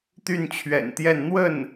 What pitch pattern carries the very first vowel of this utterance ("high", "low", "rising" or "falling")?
falling